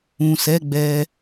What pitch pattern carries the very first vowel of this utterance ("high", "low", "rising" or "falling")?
low